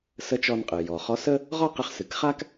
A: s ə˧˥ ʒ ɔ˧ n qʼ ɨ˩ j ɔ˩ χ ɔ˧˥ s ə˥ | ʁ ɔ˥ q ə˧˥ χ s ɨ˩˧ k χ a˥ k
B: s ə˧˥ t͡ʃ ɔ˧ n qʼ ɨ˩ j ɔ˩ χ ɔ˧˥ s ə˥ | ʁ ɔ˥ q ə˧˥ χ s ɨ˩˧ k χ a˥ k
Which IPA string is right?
B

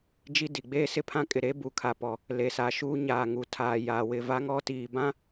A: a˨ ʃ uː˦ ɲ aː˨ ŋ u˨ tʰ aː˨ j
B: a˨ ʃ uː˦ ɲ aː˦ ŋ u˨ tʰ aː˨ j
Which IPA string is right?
A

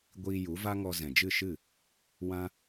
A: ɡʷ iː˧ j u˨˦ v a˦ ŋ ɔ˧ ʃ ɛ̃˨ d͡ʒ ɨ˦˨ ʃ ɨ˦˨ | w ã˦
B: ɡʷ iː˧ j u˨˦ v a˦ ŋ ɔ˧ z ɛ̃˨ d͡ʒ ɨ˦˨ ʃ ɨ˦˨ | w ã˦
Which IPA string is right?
B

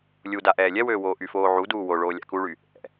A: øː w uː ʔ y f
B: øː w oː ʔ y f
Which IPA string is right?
B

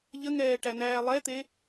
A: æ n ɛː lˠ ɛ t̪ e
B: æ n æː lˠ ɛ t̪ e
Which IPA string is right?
B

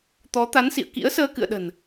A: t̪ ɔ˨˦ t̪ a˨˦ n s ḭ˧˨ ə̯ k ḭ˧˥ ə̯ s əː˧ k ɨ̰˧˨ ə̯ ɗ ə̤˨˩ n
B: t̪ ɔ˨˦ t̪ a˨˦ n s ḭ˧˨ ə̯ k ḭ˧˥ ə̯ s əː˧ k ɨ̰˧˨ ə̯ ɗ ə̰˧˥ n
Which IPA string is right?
A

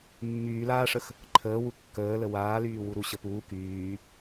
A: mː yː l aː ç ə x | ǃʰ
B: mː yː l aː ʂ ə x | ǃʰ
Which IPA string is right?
B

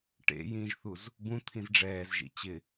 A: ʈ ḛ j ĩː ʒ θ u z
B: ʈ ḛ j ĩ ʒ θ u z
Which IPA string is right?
A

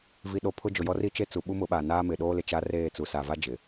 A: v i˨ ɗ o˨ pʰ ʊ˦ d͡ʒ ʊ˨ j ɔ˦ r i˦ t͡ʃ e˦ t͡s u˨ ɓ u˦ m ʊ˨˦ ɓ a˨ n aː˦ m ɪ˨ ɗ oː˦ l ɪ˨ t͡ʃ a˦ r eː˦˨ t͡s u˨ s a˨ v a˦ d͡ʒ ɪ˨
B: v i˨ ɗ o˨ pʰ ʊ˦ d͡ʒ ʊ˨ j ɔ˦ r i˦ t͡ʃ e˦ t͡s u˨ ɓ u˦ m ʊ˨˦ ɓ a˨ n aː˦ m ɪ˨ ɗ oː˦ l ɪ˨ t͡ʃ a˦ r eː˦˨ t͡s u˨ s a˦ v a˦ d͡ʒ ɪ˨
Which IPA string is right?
A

